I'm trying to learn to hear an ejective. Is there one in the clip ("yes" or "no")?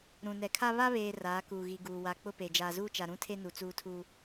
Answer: no